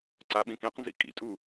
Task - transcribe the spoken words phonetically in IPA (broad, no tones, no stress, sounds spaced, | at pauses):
ǀ a ɓ ĩ k ĩ q n z ḭ kʼ ḭ tʼ u